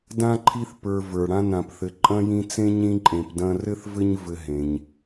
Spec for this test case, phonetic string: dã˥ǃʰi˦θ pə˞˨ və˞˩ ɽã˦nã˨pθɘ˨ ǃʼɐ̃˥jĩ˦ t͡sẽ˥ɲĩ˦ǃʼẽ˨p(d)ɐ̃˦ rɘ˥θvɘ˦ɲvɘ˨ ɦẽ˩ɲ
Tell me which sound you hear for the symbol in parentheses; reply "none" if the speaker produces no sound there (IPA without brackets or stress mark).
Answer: d